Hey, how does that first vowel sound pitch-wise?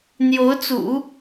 rising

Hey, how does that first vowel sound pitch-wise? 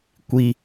high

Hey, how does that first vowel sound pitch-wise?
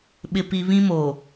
high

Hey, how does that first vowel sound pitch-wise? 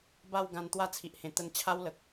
falling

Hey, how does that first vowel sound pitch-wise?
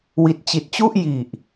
low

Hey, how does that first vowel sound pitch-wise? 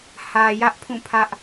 low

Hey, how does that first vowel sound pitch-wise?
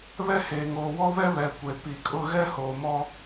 high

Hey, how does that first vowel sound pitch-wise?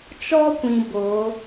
high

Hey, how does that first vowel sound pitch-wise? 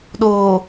low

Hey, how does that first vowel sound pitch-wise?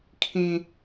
low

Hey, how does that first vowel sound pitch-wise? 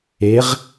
rising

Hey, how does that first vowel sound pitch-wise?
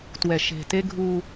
low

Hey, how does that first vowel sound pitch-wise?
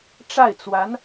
falling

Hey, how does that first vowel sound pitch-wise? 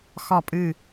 falling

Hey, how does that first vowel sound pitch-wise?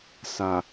low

